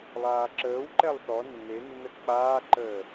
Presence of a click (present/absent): present